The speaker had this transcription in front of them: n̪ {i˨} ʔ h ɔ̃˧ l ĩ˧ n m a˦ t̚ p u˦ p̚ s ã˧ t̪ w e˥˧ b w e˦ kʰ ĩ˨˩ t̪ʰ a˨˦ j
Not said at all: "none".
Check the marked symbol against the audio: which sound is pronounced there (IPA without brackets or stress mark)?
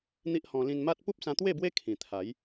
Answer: i˦